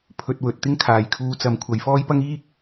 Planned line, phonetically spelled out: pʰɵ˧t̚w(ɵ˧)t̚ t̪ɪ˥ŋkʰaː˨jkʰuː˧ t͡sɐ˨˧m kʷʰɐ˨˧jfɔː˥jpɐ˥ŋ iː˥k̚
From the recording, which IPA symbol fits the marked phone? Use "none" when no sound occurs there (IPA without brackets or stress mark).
ɵ˨